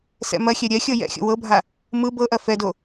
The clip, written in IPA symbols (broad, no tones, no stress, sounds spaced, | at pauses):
s ɛ̰ m ɐ xʲ ɛ ɾʲ ɛ xʲ ɤ j ɛ̰ xʲ o̰ w ɤ bʱ a | m ɯ b ɤ ʔ ɐ f ɛ d o